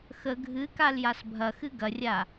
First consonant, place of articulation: velar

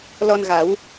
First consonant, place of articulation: alveolar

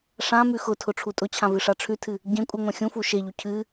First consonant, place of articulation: retroflex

